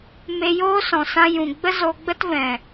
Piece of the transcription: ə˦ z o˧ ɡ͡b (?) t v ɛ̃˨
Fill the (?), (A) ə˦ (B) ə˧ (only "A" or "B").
A